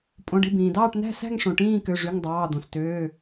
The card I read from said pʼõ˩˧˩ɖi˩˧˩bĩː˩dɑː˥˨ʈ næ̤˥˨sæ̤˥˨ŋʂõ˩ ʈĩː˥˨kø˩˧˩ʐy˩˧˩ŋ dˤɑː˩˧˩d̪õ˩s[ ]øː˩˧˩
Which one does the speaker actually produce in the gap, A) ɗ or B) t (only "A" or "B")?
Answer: B